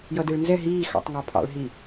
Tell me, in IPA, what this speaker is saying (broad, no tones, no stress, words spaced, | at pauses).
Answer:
jʌdeɭnzɛ ɦiː xɑ̰tˤŋɑpʰɑ̰ɭɦi